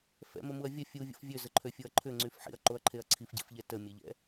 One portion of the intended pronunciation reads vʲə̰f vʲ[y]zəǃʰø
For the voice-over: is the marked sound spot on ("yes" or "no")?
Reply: no